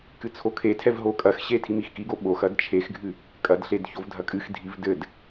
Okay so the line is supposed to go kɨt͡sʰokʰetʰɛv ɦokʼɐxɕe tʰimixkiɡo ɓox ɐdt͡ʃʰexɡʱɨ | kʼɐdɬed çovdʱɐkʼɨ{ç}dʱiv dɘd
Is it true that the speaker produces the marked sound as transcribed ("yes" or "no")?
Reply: no